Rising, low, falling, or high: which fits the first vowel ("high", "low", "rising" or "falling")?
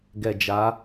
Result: low